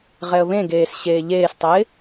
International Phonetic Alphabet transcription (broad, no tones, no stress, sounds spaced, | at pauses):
ʁ ɛ ə̯ β ẽ ɡ eː s ɕ eː ʎ eː s tˤ ɛ ɪ̯